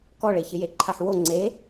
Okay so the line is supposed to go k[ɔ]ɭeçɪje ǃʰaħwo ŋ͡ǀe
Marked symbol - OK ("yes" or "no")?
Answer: yes